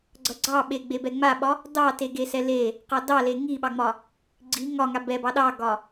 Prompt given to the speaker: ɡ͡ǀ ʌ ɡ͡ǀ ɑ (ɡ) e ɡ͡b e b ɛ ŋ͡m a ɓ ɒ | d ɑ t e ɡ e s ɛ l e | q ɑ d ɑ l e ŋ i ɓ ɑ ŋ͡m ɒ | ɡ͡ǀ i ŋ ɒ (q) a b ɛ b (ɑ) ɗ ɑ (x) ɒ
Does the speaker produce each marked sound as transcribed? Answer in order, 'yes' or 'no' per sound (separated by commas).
no, no, yes, no